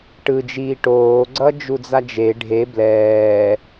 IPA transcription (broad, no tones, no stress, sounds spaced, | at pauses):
ʈ ɯ d͡ʒ iː ʈ oː ɡ͡ǀ ʌː d͡ʒ u d͡z a d͡ʒ e ɖʱ e b l ɛː